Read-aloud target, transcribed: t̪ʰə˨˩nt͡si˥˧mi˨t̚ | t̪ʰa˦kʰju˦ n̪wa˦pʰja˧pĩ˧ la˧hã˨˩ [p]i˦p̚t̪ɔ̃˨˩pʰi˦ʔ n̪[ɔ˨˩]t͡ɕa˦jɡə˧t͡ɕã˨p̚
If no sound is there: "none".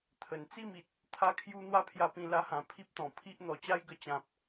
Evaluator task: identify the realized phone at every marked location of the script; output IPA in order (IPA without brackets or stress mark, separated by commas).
pʰ, ɔ˨˩